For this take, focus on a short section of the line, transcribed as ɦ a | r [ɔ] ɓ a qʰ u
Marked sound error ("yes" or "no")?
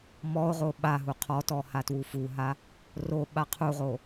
yes